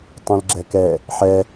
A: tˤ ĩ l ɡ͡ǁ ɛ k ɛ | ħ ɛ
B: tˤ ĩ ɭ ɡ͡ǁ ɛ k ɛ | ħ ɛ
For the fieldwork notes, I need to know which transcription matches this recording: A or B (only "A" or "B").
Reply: A